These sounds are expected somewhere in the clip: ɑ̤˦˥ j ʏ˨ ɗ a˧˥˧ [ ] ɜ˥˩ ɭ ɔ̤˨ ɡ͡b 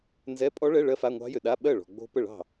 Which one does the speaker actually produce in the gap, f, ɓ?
ɓ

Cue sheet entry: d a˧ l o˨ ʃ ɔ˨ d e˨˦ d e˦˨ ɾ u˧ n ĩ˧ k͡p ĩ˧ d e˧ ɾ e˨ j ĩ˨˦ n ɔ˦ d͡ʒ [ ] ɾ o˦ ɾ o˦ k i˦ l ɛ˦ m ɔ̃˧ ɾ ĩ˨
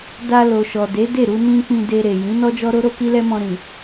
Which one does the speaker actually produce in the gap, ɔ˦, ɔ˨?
ɔ˦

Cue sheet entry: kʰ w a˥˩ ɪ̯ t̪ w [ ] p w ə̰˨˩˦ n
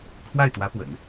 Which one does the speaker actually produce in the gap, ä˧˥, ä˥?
ä˧˥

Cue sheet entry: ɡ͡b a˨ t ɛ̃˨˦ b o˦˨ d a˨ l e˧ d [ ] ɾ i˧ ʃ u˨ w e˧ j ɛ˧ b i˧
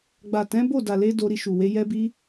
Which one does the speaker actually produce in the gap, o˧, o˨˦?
o˧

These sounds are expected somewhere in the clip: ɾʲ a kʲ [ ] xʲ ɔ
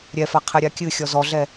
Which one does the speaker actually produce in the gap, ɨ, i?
ɨ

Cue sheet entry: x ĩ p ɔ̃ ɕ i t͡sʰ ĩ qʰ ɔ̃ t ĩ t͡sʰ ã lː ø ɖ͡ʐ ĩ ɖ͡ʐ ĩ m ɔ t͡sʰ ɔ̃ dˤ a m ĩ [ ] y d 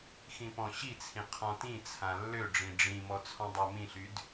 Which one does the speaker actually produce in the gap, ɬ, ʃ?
ɬ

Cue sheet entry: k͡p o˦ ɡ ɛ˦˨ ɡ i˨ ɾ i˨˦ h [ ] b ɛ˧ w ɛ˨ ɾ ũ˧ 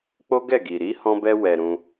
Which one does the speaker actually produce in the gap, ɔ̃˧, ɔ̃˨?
ɔ̃˧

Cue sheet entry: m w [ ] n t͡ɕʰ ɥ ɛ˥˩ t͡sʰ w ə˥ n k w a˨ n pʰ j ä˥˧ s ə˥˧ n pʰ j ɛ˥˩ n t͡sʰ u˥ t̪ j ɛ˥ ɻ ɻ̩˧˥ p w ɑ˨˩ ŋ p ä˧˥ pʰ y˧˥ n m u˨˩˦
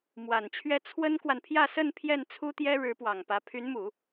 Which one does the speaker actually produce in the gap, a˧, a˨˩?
a˨˩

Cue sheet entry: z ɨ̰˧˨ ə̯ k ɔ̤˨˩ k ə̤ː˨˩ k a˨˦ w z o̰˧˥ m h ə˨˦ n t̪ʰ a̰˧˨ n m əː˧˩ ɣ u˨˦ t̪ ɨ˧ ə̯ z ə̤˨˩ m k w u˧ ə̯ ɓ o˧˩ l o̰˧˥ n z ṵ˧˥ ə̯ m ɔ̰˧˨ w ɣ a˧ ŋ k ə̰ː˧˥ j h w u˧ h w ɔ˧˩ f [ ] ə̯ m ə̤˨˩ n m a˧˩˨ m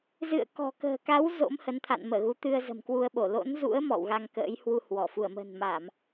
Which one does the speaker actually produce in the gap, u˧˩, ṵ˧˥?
u˧˩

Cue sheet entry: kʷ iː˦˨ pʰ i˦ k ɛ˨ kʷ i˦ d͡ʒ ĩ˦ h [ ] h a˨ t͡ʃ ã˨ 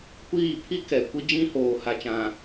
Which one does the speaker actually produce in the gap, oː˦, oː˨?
oː˨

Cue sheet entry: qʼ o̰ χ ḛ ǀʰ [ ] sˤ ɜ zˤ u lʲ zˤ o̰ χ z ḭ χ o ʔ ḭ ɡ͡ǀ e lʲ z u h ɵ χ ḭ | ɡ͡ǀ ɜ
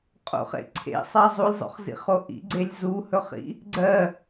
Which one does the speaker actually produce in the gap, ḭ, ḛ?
ḛ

